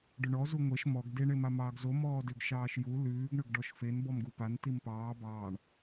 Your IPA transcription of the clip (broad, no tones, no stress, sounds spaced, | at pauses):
ɖ ʏ ɳ ɔ z u ŋʷ e ʃ m ɔ ɡ d e ɳ e m a m ɑː ɡ z o m ɔː d ʏ ɡ ʃ ɑː ʃ j u l ʉː ɡ ɳ ʏ ɡ ɖ ɔ ʃ f e n b ɔ m ɡ u p a n t i m p ɑː b ɑː ɳ